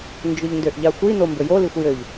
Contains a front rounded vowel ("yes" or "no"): yes